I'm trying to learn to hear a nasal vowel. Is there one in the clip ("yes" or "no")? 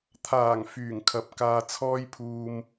no